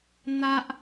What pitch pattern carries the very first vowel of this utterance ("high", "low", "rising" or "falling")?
high